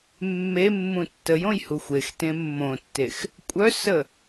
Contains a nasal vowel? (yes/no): yes